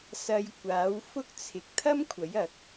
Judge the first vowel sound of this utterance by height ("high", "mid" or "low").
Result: low